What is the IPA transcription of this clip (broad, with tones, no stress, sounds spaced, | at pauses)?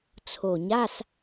t͡sʰ o˨˩ ɲ a˧˥˧ s